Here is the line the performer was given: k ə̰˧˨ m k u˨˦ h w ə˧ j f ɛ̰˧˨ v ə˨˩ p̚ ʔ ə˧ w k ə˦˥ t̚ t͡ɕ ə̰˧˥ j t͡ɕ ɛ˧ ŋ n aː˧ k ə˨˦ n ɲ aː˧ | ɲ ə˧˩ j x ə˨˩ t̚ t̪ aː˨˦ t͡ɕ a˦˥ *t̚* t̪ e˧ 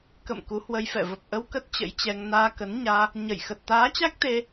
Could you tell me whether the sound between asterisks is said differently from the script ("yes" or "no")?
yes